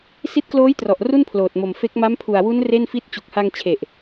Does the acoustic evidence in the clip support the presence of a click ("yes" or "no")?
no